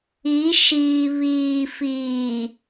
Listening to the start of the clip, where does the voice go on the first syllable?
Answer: rising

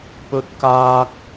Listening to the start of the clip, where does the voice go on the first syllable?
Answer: high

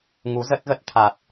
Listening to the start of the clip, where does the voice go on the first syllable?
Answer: rising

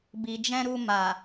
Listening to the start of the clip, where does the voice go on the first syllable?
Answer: low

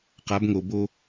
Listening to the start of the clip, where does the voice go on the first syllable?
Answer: rising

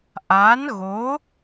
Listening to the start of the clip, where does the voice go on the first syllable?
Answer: rising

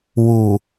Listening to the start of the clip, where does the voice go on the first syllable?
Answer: low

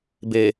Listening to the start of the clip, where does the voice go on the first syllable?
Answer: low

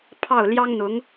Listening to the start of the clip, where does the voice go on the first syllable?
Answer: falling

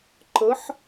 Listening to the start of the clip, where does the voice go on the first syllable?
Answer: rising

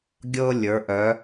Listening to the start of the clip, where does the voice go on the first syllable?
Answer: high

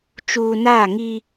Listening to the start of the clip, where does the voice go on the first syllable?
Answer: low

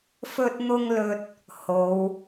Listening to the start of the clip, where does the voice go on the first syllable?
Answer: high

